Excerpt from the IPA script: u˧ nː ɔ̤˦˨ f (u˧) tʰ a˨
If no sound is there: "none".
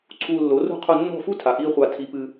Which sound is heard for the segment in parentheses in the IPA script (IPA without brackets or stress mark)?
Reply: u˦